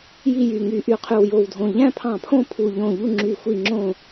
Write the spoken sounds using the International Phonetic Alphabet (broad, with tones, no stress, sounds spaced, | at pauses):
j i˥˨ j y˧˩ ŋ y˧˩ ʔ y˧˩ qʰ y˧˩ w j o˧˩ w dʱ õ˧˩ ʎ æ̃˥˨ pʰ ɑ̃˧˩ pʰ õ˥˨ pʰ u˧˩ ʎ õ˧˩ ʎ u˥˨ ŋ͡ǁ y˧˩ xʷ i˧˩ ŋ͡ǁ õ˧˩